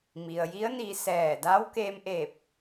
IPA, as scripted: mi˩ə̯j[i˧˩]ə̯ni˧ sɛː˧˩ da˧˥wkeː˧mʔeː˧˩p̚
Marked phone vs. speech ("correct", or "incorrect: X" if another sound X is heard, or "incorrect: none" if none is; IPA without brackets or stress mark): incorrect: i˧˥